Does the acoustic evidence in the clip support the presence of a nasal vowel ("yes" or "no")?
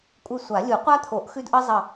no